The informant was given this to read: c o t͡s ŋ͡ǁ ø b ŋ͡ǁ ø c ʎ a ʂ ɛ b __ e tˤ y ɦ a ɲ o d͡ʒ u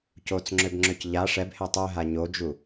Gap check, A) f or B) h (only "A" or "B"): B